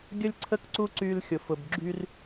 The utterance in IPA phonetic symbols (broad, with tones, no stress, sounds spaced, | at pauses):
ɡʲ ə˦ lʲ ǀʰ ə˦ k ǀ u˦ ǀ y˦ l xʲ ʊ˨ f ʊ˨ b ɡ͡ǁ y˦ r